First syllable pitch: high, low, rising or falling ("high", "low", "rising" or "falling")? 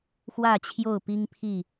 falling